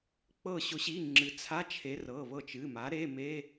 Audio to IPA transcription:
k͡p ɤ˧˩ ɕ ʊ˩˥ ɕ i˩˧˩ ŋ͡ǁ ɨ˩ t͡sʰ a˧˥˧ t͡ʃʰ e˩˥ r ɤ˩˧˩ β ɤ˧˩ t͡ʃ ɨ˩˧˩ m a˩˥ ɾ e˧˥˧ m e˧˥˧

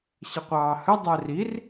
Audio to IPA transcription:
ɕ ə qʷ ɑː h ə dˤ æ r i r

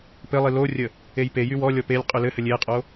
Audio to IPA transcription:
p ɘ lˠ i l o rʲ ə | e j p e j y w ɔ lʲ ɔ p e lʲ qʼ y l ɘ h ɘ lʲ e qʼ o

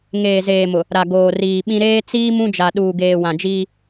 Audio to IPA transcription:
ŋ eː˨ z eː˨ m ʊ˨ | ɾ a˨ ɡ oː˨ r iː˨ ɓ ĩ˦ ɾ eː˦ t͡s iː˦ m ũ˦ d͡ʒ a˨ ɗ uː˨ ɡ eː˨ w ã˨ d͡ʒ iː˦

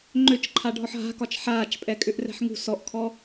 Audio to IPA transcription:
ŋ͡ǃ ø t͡ʃ ǃʰ a ɖʱ ɔ ħ ɦ a̤ k ɒ t͡ʃ ħ aː t͡ʃ pʼ ɛ kʼ ʏ ʔ r ɛ̤ ħ ŋ ṳ s ɔ ʔ kʰ ɔ

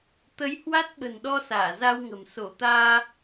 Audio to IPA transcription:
t̪ ə˨˦ j h w a˦˥ t̚ ɓ ə̤˨˩ n ɗ ɔ˧ s aː˧˩ z a˧ w ŋ ə̤˨˩ m s o˧˩ t̪ aː˧

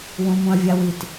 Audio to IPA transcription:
w ũ m ũ ɐ̯ vʲ a w i t

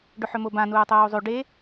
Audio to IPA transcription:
ɖ ɵ ħ ɵ m o b ã n uː tˤ uː zˤ ʉ ɖ e

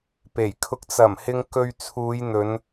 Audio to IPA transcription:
p e˨˩ j kʰ ʊ˨˥ k̚ t͡s ɐ˨˩ m h ɪ˨ ŋ k ɵ˧ ɥ t͡sʰ uː˨˧ j n̪ ɵ˨˧ n

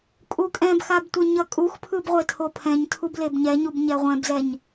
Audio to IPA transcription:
kʼ u kʼ ɛ̃ b x a b tʷ ɛ ɲ ʌ kʼ u x pʰ ɯ b ʁʷ e tʰ o pʰ ɛ̃ ɲ tʰ u b l e b ɲ ɛ ɲ u b ɲ ɛ ʁʷ ɛ̃ b z ɛ ɲ

